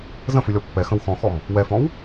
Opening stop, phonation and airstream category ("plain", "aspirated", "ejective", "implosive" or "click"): plain